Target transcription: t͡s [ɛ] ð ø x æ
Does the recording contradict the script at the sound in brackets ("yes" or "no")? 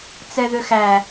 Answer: no